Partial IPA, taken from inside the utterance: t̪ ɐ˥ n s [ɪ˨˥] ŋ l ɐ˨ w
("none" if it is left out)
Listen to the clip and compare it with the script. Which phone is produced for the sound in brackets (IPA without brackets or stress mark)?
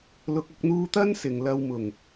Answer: ɪ˨˩